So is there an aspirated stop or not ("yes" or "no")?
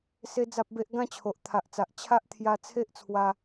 yes